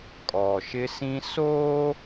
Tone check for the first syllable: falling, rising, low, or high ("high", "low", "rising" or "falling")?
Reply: low